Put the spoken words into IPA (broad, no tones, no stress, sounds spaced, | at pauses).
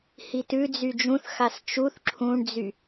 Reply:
h i t ʉ d͡z y d͡ʒ ũ θ x a s t͡ʃ u θ ǁʰ ũ ɳ d͡z y